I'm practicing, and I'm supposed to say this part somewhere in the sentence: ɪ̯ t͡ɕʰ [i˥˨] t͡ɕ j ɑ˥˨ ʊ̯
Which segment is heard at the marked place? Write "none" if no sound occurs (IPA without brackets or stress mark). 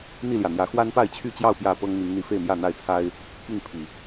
y˥˨